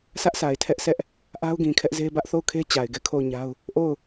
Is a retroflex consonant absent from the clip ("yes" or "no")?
yes